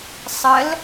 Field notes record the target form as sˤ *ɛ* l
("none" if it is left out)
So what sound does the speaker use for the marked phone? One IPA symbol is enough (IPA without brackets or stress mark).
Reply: ə